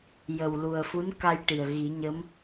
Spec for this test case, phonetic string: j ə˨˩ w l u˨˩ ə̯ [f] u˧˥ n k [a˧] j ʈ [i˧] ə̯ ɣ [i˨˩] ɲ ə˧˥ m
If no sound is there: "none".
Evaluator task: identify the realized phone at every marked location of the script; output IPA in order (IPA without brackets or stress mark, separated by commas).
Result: f, a˧, i˨˩, i˨˩˦